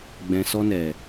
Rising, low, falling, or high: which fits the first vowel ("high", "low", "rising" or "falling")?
low